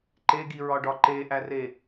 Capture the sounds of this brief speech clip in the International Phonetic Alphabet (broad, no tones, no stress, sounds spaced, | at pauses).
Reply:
ǃ e ɡ i ɹ ɒ ɖ ɒ ǃ e ʔ æ r e